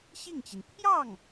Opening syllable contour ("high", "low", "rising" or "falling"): falling